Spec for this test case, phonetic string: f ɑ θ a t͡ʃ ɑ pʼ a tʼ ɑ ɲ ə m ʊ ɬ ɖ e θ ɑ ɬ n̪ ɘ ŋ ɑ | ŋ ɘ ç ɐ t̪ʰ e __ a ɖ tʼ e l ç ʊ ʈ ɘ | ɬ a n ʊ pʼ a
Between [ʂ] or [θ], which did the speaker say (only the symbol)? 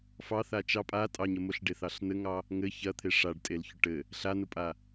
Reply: ʂ